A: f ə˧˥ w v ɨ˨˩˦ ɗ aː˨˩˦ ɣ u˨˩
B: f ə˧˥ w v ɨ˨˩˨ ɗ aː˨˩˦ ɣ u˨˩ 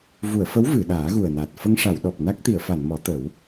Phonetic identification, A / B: B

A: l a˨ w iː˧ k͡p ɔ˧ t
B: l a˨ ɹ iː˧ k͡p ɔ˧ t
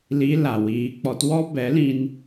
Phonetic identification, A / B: A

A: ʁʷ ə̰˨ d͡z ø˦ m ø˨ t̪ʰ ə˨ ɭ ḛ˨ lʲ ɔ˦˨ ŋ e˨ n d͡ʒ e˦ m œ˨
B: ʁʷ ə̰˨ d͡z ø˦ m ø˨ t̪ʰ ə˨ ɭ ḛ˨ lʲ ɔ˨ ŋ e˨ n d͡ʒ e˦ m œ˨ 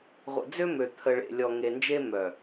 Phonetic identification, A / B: B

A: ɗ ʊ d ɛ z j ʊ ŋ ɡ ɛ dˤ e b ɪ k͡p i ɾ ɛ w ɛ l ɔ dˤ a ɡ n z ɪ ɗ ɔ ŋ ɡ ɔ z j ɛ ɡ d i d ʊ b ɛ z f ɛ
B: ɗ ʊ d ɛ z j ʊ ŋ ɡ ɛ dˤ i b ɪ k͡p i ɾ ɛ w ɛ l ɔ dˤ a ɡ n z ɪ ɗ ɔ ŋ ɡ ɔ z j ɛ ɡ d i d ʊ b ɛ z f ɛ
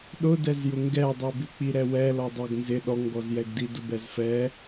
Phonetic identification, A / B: B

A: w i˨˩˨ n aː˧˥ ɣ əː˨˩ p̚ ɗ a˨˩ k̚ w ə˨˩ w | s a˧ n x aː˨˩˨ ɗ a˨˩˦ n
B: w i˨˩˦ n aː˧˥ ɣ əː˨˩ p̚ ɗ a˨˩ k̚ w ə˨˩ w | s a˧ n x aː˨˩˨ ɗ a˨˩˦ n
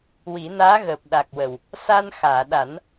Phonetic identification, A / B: B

